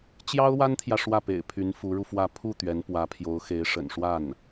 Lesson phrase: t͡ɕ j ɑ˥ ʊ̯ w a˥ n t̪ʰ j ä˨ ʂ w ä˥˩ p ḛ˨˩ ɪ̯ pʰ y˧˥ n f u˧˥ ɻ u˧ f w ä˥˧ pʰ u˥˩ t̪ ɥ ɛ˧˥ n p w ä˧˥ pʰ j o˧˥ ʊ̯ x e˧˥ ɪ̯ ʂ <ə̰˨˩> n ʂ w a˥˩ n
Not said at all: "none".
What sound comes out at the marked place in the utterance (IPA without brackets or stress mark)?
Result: ə̰˨˩